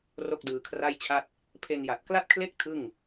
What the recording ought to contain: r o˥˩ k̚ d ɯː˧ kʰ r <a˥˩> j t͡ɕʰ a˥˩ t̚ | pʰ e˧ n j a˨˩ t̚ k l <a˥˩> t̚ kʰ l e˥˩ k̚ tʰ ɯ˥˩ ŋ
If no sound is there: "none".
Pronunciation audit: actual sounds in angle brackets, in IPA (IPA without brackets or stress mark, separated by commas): a˥˩, a˥˩